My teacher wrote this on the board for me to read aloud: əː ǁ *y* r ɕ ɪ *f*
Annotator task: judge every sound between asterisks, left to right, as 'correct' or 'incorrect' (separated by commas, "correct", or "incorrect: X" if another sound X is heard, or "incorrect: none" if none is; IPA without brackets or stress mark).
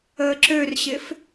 incorrect: ø, correct